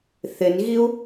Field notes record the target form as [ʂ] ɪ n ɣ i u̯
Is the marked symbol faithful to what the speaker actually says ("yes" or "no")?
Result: no